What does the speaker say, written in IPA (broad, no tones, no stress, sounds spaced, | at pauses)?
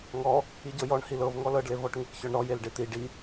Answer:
ŋ ɔ | i ɟ ɤ j ɔ ɳ h i l ɤ v ŋ ɔ l ɤ ɖ l e v ɔ ʈ ŋ e k ç ɔ ɳ ɾ ɔ j e l ɖ e t̪ i ɖ i